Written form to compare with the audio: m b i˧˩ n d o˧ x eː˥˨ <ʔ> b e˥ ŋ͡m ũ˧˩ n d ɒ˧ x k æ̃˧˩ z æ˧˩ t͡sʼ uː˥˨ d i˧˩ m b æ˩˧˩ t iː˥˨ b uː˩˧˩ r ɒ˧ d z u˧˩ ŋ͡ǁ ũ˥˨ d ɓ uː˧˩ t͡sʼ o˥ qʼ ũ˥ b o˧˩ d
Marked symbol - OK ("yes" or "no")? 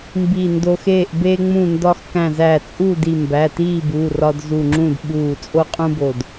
yes